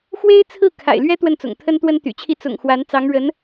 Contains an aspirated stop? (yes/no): yes